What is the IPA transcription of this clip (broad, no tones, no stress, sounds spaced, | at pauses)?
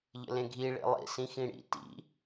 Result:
ʎ ə̰ l ẽ ɡʱ i ɭ ḭ lˠ ḭ s ĩ x ĩ ɽ ḭ t ḭ